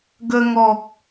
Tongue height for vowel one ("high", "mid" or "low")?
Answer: mid